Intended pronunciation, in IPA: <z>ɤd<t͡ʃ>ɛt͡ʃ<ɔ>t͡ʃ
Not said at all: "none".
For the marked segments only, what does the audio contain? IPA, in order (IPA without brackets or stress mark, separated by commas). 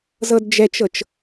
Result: z, d͡ʒ, ɤ